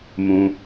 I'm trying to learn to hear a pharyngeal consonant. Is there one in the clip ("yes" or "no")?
no